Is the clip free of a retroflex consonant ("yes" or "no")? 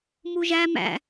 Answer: yes